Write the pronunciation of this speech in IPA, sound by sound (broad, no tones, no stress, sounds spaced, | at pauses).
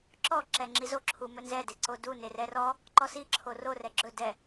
ǁ ɔ ǁ ɛ ŋ͡ǁ i z o ǁʰ u m ɵ n z ɛ d e ǀ o d u n e r ɛ r ɔ | ǃ ɔ s i ǁʰ o r o r ɛ ɡ͡ǁ ɵ d ɛ